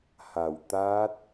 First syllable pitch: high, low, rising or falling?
low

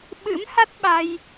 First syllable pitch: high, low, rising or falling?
rising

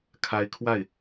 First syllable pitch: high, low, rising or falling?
rising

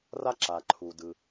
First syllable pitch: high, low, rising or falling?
high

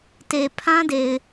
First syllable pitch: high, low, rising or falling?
low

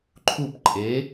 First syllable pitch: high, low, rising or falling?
falling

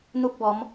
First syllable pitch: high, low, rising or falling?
high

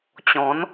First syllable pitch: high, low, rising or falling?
rising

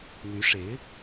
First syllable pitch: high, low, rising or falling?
rising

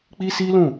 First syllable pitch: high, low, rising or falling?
high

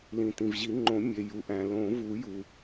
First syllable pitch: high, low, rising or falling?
low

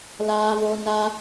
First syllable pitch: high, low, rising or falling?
high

